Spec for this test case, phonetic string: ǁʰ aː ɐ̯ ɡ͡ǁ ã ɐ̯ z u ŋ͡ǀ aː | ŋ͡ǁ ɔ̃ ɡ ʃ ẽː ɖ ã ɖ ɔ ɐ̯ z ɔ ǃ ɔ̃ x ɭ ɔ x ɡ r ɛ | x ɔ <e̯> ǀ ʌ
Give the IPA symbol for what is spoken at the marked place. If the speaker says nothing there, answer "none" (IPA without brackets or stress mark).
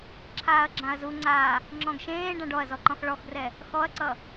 ɐ̯